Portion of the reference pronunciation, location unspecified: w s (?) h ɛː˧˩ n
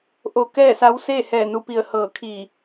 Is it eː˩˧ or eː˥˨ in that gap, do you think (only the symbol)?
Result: eː˥˨